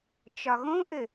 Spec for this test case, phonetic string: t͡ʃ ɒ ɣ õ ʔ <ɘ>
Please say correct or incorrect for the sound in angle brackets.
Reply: correct